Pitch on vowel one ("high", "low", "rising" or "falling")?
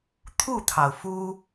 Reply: falling